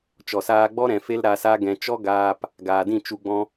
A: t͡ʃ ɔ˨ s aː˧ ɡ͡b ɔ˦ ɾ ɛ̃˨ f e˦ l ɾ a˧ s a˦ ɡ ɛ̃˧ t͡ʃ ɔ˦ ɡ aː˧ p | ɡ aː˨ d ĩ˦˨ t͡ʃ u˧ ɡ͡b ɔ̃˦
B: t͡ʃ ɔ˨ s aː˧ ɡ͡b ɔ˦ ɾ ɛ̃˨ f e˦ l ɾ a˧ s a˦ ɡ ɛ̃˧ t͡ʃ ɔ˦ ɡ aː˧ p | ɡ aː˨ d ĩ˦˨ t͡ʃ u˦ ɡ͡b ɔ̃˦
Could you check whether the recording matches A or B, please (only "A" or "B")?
A